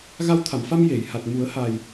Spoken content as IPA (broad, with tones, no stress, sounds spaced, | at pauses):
ɣ a˧ w t̪ʰ a˨˩˨ m f a˧ m j e˨˩˨ j h a˨˩ t̚ m u˨˩˦ ə̯ h a˨˩ j